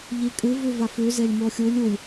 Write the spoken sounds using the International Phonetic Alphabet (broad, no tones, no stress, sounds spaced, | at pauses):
ʎ i kʼ ɨ v ʉ v a f ʉ z e lʲ m o xʲ u lʲ u lʲ